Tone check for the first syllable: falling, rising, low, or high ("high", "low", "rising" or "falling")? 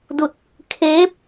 falling